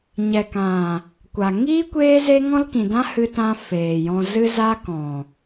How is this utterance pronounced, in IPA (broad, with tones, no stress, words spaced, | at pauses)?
ɲɛ˨kã˨ | kʷa˨ ŋiː˦ kʷeː˦ze˦ ŋɔ̃˦lkĩ˨dã˦ hɨ˧tã˧ feː˨jɔ̃˧zɨ˦ za˦ kɔ̃˨